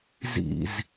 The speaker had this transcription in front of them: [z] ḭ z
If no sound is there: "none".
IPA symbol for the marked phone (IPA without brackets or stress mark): z